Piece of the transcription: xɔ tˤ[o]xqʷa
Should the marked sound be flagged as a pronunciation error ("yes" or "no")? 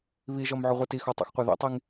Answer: yes